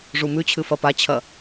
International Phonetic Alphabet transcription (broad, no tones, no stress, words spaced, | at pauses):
ʐumʉt͡ɕʰɨ fɐpat͡ɕʰɐ